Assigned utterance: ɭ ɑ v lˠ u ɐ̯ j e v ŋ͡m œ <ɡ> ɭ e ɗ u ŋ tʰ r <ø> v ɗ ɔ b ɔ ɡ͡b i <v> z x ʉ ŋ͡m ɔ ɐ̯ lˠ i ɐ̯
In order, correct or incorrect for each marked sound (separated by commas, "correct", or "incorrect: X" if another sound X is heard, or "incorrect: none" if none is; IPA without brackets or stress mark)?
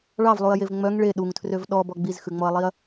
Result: incorrect: ŋ, correct, incorrect: none